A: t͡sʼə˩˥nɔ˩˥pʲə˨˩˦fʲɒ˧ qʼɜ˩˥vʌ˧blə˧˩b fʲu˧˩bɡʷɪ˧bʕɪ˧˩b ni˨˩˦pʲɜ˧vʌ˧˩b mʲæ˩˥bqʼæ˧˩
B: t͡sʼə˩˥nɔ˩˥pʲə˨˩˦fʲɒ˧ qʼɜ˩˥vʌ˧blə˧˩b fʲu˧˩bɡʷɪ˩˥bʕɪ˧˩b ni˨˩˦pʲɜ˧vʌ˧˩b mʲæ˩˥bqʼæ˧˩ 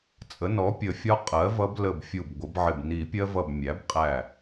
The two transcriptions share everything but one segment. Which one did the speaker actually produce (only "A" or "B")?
B